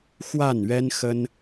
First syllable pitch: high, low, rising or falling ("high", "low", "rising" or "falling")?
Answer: falling